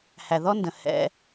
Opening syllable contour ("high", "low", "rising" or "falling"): low